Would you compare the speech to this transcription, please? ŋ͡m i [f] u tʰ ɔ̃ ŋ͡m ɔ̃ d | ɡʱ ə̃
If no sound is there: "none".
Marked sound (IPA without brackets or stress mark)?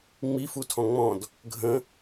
f